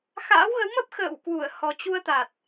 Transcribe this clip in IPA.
x a̰ː˧˥ w ɣ ə˨˦ w m ə˦˥ p̚ x ə̰ː˧˨ w k w u˧˩ ə̯ h ɔ˨˩ t͡ɕ u˧ ə̯ t̪ a˨˩ t̚

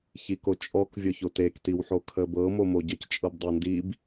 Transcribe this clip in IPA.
ç i k o t͡ʃʼ ɔ k vʲ ɔ ç o t e k t i w ħ o kʰ ə b ɤ m o m o ɟ ə c t͡ʃʼ ɤ b dˤ o n d i b

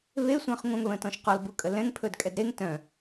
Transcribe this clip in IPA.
β e sʷ ə̃ː χ ŋʷ œ̃ ŋ β ə̃ː t ɔ̃ ʃ q ɔ l b u kʼ ə l ɛ̃ ŋ pʰ ɵː d kʼ ɛ d ɾ e ŋ t œ̃

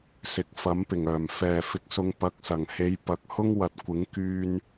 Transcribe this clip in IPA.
s ɪ˨˥ k̚ f ɐ˨˥ m p ɪ˨˩ ŋ œː˨˩ m f ɛː˨˩ f ɪ˨˥ k̚ s ʊ˨˧ ŋ p ɐ˨˥ k̚ s ɐ˨˩ ŋ h e˨˧ j p ɐ˨ k̚ h ʊ˥ ŋ w ɐ˨ t̚ kʷ ɪ˨˥ ŋ k yː˧ n

